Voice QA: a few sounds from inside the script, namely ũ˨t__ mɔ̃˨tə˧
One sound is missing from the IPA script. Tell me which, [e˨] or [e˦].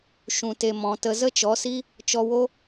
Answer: e˨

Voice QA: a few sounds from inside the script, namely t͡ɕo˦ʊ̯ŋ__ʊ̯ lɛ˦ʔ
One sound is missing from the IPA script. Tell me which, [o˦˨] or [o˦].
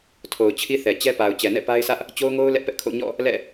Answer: o˦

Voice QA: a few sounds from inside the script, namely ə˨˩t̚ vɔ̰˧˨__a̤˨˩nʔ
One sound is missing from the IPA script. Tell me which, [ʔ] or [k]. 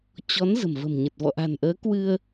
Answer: ʔ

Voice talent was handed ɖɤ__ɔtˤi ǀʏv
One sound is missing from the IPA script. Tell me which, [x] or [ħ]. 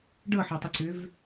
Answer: ħ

